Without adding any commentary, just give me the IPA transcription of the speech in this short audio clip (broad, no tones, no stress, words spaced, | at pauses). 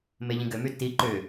meʎĩɡʏmy ti ǃʏ